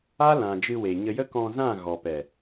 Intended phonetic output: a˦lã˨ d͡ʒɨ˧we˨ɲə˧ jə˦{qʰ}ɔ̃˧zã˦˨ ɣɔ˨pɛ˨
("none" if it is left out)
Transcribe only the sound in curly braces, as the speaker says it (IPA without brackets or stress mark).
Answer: k